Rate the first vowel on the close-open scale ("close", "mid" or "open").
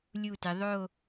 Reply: close